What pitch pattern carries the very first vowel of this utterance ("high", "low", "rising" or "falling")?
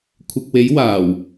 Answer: low